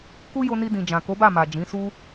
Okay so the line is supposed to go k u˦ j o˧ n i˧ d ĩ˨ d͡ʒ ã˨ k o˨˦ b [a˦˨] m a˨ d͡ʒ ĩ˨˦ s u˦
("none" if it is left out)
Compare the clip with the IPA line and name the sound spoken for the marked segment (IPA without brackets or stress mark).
a˦˨